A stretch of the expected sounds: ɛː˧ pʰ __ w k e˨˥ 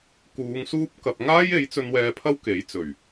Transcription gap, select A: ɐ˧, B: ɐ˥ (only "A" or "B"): B